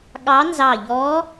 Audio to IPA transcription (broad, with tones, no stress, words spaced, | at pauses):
ɠɑ˧˥nzɑ˧˩ʎɔ˧˥